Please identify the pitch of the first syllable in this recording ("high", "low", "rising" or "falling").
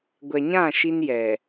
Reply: low